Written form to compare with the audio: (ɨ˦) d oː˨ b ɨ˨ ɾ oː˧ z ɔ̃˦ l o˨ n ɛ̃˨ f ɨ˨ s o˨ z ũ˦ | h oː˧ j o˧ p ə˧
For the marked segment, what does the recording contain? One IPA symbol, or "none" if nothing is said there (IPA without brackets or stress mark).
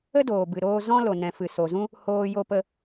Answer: ə˦